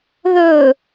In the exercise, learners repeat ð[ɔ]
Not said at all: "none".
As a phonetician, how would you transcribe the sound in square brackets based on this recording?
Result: ɵ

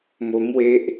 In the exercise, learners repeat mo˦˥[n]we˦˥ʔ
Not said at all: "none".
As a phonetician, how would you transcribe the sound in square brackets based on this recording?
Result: m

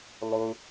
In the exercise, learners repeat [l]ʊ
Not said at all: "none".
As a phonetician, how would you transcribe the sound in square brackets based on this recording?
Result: lˠ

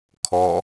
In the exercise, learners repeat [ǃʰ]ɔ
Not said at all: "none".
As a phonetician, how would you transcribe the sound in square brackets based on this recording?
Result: kʰ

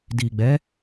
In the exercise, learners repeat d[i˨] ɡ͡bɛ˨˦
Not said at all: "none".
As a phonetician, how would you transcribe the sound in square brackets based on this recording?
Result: i˨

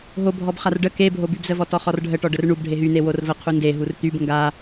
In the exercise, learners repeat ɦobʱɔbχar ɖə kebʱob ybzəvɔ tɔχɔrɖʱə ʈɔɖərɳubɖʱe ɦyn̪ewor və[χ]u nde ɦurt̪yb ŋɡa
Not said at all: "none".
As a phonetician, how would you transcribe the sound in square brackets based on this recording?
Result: qʰ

